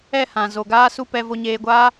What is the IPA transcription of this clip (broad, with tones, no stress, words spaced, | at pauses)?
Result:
ɛ˦˨ hã˨ zo˨ɡaː˦su˦ pɛ˧vo˧ɲeː˧ɡʷaː˦